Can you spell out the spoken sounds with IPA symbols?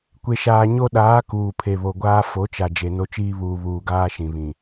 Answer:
kʷe˨ʃaː˨ ɲo˦ ɗaː˨˦ kuː˨pʰe˨βo˨ɡʷaː˦ fo˨˦t͡ʃa˨ d͡ʒe˨no˦t͡ʃiː˦ βuː˨βuː˨ɡaː˦ ʃĩ˨βĩ˨

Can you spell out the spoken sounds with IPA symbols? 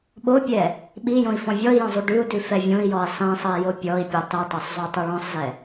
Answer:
ɓopʲɛ | ɓijõi̯ fɔ̃vʲɔi̯jɔ̃zˤu ɖʉu̯dʉ fɛvʲõi̯jɔi̯ sˤĩsˤəi̯jo pʲɔi̯pʲo tˤitˤɛsˤzˤo tˤʉɭɔ̃sˤzɛ

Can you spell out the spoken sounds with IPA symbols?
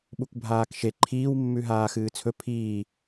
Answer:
ɓukʷbʱaːkʃe ǃʰiːwmːʉ ɦaːxɨːt͡sʰɵ pʰiː

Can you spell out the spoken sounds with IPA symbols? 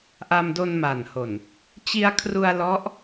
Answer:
ʔa˧mdo˧nma˨˩nho˨˩n | t͡ɕi˧a̯kʰru˧a̯ lɔ˦˥ʔ

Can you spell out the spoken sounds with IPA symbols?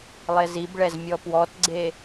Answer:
lˠezibɭɛz mʲɔpwɔtɡ͡ǀe

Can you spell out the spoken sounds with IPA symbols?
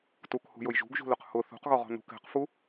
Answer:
tukhṳjʊj ʒṳɡʒṳlʊq hʊ θṳqɣɔʁɔ̤ nṳk ɛ̤qfu

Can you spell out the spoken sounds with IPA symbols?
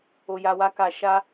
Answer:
o˨ja˨wa˧ ka˨ ʃa˧

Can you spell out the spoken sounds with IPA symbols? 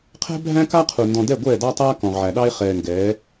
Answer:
qʰɛ̤˦bʱæ̃˦ka˦qʰu˨ ndɔ̃˨dɛ˦˨ɡʷɛː˦˨ dɑ˦tˤaː˦ kɔ̃˨ʁʕæ˨ ɗɑ˦e̯χɛː˨ŋɡɛː˨˦

